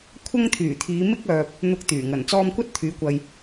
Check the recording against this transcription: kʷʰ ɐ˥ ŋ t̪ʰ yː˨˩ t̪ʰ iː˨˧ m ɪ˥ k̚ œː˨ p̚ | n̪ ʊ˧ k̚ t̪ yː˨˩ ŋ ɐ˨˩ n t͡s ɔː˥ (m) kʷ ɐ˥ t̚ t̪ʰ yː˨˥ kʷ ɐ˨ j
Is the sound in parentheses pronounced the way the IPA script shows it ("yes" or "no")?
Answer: yes